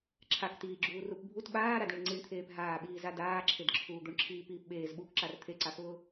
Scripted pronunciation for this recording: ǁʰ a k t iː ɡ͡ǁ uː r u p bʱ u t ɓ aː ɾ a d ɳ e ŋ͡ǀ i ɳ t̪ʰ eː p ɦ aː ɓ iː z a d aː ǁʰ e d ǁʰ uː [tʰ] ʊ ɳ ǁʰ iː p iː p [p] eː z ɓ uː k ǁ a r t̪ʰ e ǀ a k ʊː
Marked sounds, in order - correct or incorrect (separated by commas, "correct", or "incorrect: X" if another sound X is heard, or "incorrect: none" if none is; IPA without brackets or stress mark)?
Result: incorrect: d̪, incorrect: ɓ